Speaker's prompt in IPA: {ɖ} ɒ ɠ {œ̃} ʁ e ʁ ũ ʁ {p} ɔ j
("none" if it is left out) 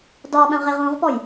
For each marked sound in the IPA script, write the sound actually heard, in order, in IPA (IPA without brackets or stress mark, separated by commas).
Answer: d, œ̃, p